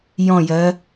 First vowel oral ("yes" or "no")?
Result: no